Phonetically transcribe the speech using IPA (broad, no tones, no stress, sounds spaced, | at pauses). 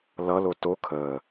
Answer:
l ʌ l o t o kʰ əː